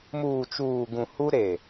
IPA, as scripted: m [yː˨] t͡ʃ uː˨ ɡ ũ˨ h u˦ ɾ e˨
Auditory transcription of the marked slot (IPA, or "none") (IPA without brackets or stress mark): uː˨